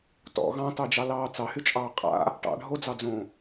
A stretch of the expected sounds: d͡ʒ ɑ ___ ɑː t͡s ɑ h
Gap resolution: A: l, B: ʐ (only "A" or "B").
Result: A